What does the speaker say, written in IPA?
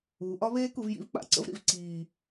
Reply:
uː˩˧ ʔ ɒ˦˥ β eː˦˥ k u˩˧ v j ḭ˦˥ v k͡p a̰˩˧ ǀ ə̰˦˥ v ɾ ḭ˩˧ v ǀ iː˨˩

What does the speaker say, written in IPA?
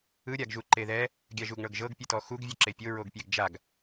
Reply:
ɯ ɾʲ a ɡ ʒ u ǃ e ð ɛ | ɡʲ a ʒ u ɡ ɳ ɤ ɡ ʒ ɤ ɡ pʲ ɯ t ɔ x u ɡ vʲ o ǁ e pʲ o ɹ o ɡ pʲ ɛ ɡ d͡ʒ a ɡ

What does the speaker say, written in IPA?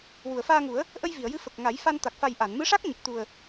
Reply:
w u˨˩˨ ə̯ f aː˧ ŋ u˨˩˦ ə̯ | ʔ ə˧ j v i˨˩˨ ə̯ j ɨ˧˥ f ə˨˩ k̚ ŋ a˨˩˦ j f a˧ n t̪ a˨˩ k̚ f a˨˩ j ʔ a˨˩˨ n m ɨ˧˥ ʂ a˦˥ k̚ ɲ ə˨˩ k̚ t̪ u˨˩ ə̯

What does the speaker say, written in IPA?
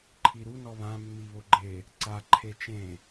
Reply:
ǃʰ i ɾ u n ɔ β ã mː i β o ɡ͡ǃ e | ǀ a ǃʰ e t͡ʃ ẽ

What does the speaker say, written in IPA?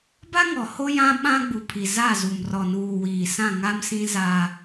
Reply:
b a˦ ŋ ɔ˨ h o˦ j ã˦ ɓ ã˦ ɡ͡b u˨ pʰ i˨ z a˦˨ z u˨ m r ɔ˨ n uː˨ w iː˨ s ã˦˨ ŋ a˦ m s ĩ˦ z aː˦

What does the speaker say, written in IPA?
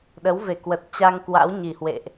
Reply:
ɗ ə˨˦ w v e˧˩ k w ə˨˩ t̚ t͡ɕ a˧ ŋ k w a̰˧˥ w ɲ i˧˩ h w ḛ˧˨ ʔ

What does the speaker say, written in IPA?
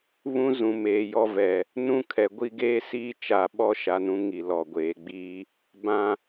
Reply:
β ũ˦ z ũ˨ m eː˨ j ɔ˦ v ɛ˨ | n ũ˦ kʰ ɛ˨ ɡʷ i˦ ɡ eː˦ s iː˦ t͡ʃ a˨ ɓ ɔ˦ ʃ a˨ n ũ˦ ŋ i˨ l ɔ˨ ɡʷ eː˨ ɡ͡b iː˦ | b ã˨

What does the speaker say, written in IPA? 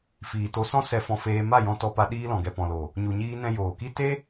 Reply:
f iː˨ t o˧ s ɔ̃˦ s ɛ˧ f ɔ̃˧ f eː˧ m a˦˨ j ɔ̃˧ t ɔ˧ p a˧ ɗ iː˧ l ɔ̃˨ ɡ ɛ˨ p ɔ̃˨ l o˨ | ɲ u˨ ɲ iː˧ n ɛ̃˧ j oː˨ k i˦ t e˦

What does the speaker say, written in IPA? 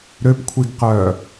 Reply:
ɾ ø p kʷʰ i ɡ q œː

